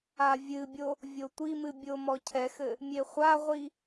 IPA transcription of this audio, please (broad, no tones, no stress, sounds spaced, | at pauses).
a vʲ ɨ bʲ o | vʲ o tʷ i m ɨ bʲ o m ɔ cʰ ɛ x ɘ | mʲ e χʷ a ʁʷ i